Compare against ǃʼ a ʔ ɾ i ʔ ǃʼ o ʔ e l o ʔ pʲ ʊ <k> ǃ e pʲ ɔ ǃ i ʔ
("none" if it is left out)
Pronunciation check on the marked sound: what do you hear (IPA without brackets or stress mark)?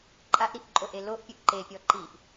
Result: ʔ